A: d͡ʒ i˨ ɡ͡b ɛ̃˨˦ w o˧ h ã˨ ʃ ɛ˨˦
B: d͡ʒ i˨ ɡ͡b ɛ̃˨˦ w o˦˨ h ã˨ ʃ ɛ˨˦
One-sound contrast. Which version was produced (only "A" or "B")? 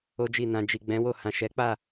B